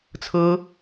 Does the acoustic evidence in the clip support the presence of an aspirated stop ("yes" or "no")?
yes